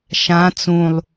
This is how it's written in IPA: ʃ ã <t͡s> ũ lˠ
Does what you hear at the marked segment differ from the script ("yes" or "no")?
no